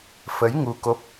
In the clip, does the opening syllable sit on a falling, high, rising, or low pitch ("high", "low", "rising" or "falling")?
rising